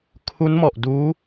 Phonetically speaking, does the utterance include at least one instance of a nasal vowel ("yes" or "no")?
no